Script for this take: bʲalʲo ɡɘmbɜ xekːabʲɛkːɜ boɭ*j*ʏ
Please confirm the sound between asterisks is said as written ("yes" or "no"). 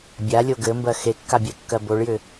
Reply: yes